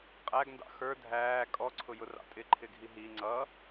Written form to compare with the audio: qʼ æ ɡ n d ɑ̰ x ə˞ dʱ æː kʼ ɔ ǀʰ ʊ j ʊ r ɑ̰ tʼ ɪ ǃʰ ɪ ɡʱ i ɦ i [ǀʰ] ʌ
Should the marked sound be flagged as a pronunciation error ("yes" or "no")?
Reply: yes